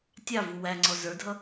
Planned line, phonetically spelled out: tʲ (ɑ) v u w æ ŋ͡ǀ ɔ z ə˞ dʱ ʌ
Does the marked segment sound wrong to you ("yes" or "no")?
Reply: no